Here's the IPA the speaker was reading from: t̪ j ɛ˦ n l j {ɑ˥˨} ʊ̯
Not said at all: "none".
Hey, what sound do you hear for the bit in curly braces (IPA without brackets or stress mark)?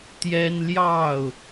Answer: ɑ˥˨